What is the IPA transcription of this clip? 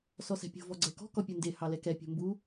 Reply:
s ɔ s ɛ̤ pʲ o̤ v ɔ ɡ͡ǀ ɛ k ɔ̤ k ɔ pʲ u n d e h ɑ l ɛ k ɛ pʲ o̤ m b u

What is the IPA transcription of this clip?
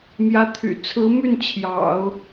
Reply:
m j ä˧˥ t̪ʰ y̰˨˩ t͡sʰ ɹ̩˧˥ m y˥˩ n t͡ɕʰ j ɑ̰˨˩˦ ʊ̯

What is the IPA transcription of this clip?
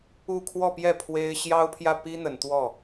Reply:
u˥˧ kʰ w ɔ˥˧ p j ɛ˥˩ pʰ w e˥ ɪ̯ ɕ j ɑ˥ ʊ̯ pʰ j ä˥˩ p i˥ n̪ ə˨˩ n t̪ w ɔ˥˩

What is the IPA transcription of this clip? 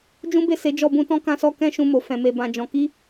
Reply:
d͡ʒ ũ˦ b e˦˨ s e˨˦ d͡ʒ ɔ˧ b ũ˧ t ɔ̃˦ k ã˧ s ɔ˧ k ɛ̃˦ ʃ ũ˧ m o˨ f ɛ̃˨ m e˨ b ã˧ d͡ʒ ɔ̃˧ k i˦

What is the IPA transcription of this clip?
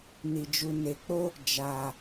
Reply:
n i˨ d͡ʒ u˨ n e˨ k͡p o˦ | d͡ʒ aː˨

